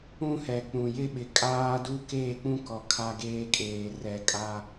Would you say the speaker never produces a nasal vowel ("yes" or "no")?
no